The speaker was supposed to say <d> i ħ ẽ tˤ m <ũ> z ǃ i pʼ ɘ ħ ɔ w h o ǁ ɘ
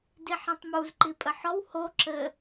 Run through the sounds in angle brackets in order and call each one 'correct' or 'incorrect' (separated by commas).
correct, incorrect